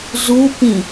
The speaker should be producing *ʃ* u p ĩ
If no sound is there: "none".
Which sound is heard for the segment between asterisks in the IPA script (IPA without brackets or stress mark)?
z